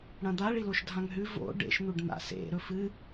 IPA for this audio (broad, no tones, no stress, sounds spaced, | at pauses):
ɽ ɐ̃ d̪ a ɭ i l o ʃ dʱ ã ŋ ɦ ʉ v o̰ ɖ ḛ ʃ n̪ u ɖ n̪ a̰ s ḛ ɾ ɵ f ɨ